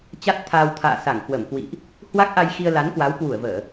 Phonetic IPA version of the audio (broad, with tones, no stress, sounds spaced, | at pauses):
t͡ɕ a˦˥ t̚ t̪ʰ aː˧ w t̪ʰ a̰ː˧˨ s a˧˩ ŋ k w ə˧˩ m k w ḭ˧˨ ʔ | h w a˦˥ k̚ ʔ a˧ j x i˧ ə̯ l a˨˦ n k w a˨˦ w k w u˧˩ ə̯ v əː˧˩˨